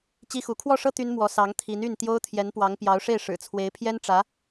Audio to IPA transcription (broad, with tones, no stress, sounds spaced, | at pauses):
t͡ɕ i˥ x u˧˥ kʰ w ɔ˥˩ ʂ ɤ˥ t̪ y˥ n m w ɔ˧˥ s ɑ˧˥ ŋ t̪ʰ i˧˥ n y˥˩ n t̪ j o˥ ʊ̯ t̪ʰ j ɛ˧˥ n p w ɑ˧˥ ŋ p j ɑ˧˥ ʊ̯ ʂ e˥˩ ɪ̯ ʂ ɻ̩˨˩ t͡sʰ w e˧˥ ɪ̯ pʰ j ɛ˥ n ʈ͡ʂ ä˧˥